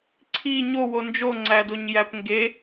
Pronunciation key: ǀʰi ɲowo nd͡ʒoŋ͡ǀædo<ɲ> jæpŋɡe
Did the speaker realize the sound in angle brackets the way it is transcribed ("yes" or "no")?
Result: yes